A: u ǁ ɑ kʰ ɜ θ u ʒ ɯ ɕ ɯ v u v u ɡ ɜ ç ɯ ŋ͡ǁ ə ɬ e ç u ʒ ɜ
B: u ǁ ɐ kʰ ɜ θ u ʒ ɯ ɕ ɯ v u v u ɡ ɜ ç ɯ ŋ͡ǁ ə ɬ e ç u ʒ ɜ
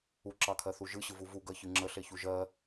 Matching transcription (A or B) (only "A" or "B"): A